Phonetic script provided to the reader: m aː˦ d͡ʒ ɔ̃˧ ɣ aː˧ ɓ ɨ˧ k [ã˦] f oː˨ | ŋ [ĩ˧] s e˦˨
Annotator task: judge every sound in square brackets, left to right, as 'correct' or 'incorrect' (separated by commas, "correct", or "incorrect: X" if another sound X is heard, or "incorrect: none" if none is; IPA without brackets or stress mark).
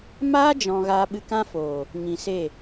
correct, incorrect: ĩ˨